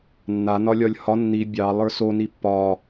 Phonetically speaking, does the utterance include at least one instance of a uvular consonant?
no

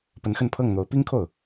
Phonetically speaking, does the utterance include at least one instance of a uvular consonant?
no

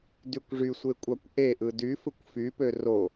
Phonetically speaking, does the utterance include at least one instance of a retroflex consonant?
yes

